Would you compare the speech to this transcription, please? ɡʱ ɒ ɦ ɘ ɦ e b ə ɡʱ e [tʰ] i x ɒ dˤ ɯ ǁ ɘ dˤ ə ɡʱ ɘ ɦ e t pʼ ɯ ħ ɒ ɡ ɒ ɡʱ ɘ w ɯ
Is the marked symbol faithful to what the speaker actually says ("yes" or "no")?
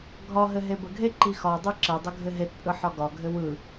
no